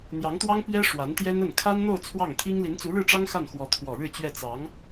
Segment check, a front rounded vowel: absent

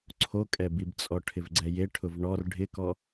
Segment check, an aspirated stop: present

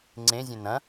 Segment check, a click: present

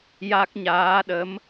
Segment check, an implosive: present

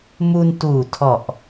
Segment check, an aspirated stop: present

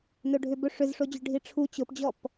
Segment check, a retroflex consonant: present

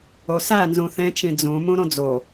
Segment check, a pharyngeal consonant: absent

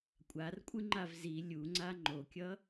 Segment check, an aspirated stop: absent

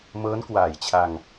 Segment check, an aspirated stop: present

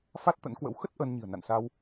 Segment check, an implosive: absent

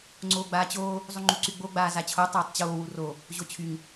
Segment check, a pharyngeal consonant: absent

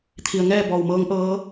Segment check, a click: absent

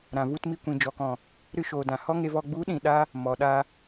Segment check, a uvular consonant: absent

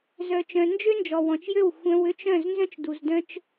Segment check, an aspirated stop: absent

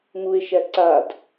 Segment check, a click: present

